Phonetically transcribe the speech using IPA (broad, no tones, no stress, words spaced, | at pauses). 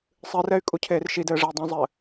sˤɨrɛy̯ kʼucʰeːrʃidɘː ʐei̯dˤũzˤɘː